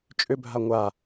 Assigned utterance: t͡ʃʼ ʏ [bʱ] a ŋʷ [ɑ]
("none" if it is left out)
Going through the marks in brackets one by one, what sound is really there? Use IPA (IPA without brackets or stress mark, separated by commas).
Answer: bʱ, a